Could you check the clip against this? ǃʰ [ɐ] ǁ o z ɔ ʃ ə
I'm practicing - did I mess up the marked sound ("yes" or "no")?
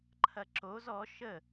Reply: no